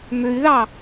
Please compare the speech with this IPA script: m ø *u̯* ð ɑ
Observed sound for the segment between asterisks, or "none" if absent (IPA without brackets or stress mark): y̯